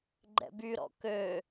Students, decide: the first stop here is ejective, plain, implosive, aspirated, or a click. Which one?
click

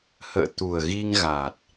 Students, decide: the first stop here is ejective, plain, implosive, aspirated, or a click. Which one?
plain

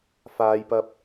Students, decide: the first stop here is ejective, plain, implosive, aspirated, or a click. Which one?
plain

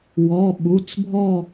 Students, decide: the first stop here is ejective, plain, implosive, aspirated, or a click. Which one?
implosive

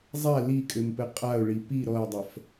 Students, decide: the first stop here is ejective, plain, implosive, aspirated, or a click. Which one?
ejective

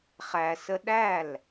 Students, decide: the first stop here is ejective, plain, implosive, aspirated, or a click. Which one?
implosive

